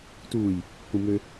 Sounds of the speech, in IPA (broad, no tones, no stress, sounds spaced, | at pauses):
t uː j | k ũ m ø